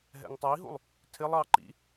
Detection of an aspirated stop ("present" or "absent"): present